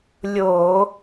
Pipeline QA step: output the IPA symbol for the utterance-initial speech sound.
lʲ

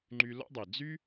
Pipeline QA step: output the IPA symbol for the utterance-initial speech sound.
ŋ͡ǃ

